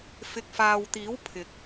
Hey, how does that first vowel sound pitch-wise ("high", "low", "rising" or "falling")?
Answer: low